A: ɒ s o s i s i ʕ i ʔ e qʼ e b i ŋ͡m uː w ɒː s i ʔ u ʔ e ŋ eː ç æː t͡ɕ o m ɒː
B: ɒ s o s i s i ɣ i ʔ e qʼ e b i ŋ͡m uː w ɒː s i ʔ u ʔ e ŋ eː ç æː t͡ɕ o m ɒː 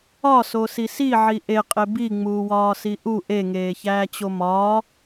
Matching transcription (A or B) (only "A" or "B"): A